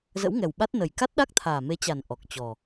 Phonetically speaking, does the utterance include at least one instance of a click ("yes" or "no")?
no